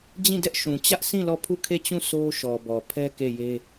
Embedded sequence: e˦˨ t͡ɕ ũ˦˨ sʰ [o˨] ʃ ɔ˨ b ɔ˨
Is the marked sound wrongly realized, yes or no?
yes